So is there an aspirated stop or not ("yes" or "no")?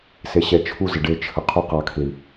yes